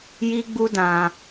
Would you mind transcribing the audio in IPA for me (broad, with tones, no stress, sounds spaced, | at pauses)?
j i˦ ɡ͡b u˦ d ã˧